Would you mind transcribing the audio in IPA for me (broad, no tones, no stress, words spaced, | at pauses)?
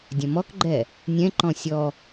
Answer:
dʲɐ̃mɔkɡ͡ǃɛ | nʲɛ̃ǃɔ̃ sʲɔ